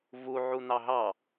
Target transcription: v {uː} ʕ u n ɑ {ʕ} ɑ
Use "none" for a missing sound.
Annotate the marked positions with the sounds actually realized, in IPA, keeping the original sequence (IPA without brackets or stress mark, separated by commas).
u, ɦ